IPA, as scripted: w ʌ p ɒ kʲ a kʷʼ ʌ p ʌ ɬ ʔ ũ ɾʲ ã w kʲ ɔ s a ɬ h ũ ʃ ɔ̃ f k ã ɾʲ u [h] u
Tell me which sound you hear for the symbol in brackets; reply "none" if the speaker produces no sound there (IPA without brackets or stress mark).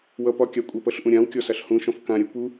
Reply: p